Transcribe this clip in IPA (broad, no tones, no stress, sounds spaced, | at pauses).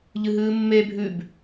ʎ ɨ ɦ ɨː mː e bʱ ʉ b